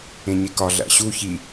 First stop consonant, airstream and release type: plain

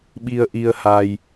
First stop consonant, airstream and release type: implosive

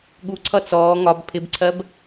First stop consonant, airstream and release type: implosive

